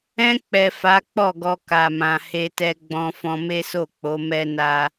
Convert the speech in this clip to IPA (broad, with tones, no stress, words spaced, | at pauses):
ɛ̃˧k͡pɛ˨ fa˨˦k͡pɔ˦˨ɡɔ˧ ka˨mã˨ he˧tɛ˧ɡ͡bɔ̃˧ fɔ̃˧me˦so˦˨k͡po˨˦ mɛ˦na˦